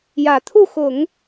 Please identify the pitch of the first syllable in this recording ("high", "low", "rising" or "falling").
low